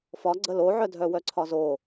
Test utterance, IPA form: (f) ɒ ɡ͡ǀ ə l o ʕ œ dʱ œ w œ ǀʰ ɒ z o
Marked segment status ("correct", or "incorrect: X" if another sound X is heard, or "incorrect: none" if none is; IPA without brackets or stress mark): correct